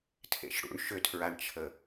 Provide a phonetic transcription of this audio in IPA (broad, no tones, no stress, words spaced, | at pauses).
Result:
tʰḛʃɽṵɳ ʃʏtʰɹaɳt͡ʃʰə